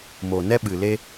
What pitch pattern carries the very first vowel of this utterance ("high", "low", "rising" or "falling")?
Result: low